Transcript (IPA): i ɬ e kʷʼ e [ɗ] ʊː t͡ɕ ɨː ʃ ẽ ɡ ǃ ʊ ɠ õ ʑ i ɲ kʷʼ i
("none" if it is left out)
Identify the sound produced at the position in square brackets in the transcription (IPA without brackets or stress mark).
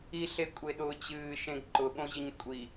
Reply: ɗ